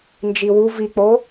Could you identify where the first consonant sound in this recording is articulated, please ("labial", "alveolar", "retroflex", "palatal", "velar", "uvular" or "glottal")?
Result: alveolar